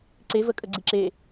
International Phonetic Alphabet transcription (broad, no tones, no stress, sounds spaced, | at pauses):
ǀ e v ə kʼ ə ɡ͡ǀ i ǁ e